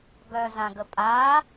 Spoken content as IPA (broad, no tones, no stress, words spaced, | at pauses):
ɡœzãɡə pʼa